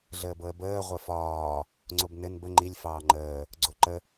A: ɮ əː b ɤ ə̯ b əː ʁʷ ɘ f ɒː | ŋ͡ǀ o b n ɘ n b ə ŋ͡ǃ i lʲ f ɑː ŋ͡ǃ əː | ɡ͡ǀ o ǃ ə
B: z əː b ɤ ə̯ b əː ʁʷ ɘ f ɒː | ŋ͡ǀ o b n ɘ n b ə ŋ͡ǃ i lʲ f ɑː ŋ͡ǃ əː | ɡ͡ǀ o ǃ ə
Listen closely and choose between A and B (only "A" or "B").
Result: A